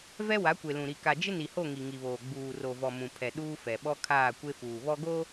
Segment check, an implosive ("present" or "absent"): present